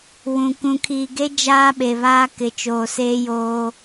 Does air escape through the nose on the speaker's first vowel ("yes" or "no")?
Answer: yes